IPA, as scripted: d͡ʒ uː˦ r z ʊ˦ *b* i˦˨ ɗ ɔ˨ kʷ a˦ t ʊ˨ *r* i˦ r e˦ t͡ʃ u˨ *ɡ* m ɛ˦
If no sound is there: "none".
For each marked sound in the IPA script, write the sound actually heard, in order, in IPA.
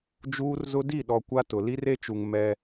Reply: d, l, ŋ

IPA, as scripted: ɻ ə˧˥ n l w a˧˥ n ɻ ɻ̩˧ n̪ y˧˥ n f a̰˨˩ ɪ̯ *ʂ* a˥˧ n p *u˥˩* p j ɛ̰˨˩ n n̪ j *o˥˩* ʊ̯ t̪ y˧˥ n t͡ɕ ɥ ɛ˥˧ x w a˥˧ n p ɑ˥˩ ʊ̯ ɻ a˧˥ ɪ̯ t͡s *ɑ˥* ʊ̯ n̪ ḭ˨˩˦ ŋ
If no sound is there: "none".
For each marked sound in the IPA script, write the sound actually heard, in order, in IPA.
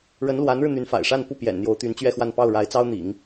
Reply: ʂ, u˥˩, o˧˥, ɑ˥

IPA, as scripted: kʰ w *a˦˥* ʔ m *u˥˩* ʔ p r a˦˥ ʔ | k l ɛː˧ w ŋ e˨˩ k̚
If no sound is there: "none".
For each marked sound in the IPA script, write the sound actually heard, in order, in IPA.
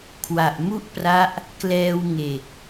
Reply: a˨˩, u˥˩

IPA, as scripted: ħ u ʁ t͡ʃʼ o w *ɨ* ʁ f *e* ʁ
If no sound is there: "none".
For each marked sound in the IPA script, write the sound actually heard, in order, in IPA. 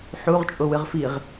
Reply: ɨ, i

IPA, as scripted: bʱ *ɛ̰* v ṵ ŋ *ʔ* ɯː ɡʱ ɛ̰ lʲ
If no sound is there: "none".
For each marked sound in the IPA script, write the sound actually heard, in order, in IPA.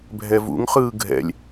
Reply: ɛ, χ

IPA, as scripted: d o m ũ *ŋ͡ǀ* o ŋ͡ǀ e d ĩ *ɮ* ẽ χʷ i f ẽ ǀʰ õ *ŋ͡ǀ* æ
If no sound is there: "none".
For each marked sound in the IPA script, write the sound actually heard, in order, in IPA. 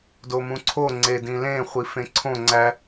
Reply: ǀʰ, l, ŋ͡ǀ

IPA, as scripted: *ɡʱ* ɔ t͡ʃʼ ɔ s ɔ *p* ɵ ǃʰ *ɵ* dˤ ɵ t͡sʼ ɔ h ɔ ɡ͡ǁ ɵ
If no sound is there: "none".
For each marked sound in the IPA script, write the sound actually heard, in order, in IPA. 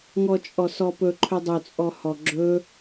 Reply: ŋ, p, ɵ

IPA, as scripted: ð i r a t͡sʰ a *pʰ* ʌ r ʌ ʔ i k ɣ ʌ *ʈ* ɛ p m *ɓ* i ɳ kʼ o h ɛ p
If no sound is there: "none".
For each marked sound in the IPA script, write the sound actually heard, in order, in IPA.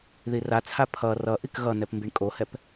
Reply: pʰ, n, b

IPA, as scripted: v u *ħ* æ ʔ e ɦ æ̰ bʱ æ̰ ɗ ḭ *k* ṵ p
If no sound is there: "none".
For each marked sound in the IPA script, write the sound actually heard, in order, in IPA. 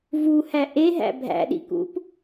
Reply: h, k

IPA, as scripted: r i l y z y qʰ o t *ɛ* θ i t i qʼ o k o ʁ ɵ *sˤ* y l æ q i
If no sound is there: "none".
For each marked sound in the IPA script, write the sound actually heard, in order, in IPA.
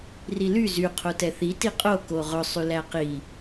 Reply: ɛ, sˤ

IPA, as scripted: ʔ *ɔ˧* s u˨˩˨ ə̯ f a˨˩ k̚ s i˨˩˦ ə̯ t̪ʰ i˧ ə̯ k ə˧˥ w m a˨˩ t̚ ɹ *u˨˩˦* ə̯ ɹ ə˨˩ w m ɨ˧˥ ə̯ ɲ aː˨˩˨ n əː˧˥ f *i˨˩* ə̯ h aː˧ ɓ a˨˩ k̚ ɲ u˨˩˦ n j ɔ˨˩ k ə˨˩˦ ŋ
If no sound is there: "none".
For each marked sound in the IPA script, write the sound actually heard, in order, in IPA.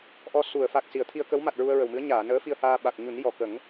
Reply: ɔ˧, u˧, i˧

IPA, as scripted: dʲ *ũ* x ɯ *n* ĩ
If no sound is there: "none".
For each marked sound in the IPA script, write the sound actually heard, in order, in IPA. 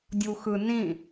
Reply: u, n

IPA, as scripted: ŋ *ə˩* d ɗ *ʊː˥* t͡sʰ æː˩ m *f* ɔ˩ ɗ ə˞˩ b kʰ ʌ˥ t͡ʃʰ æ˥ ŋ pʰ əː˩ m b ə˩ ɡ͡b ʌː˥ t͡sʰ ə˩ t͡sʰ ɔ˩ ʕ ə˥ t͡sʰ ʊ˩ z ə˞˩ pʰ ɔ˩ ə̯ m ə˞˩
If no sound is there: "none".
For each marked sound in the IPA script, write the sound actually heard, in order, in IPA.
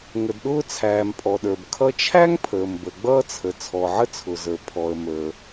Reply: ə˩, ʊː˥, pʼ

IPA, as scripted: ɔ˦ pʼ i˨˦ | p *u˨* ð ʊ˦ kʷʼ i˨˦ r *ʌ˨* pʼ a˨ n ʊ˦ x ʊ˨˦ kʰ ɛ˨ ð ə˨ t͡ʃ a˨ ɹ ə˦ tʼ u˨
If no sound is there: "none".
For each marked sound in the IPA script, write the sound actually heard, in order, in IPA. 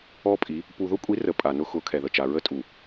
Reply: u˨, ə˨

